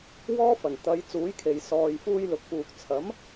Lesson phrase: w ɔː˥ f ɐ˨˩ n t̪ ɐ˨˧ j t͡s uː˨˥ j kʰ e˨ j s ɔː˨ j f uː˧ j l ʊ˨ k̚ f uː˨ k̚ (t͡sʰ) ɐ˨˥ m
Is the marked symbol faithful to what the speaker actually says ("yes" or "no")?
yes